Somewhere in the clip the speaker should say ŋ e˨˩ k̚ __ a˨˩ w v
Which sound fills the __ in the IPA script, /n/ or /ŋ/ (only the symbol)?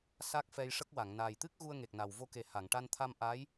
n